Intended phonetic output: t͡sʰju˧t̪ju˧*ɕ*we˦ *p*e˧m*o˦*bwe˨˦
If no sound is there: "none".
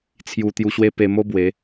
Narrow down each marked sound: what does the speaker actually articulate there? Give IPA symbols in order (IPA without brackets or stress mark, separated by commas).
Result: ɕ, p, o˦